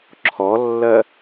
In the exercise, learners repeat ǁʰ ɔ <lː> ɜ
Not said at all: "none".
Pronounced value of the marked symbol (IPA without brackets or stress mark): lː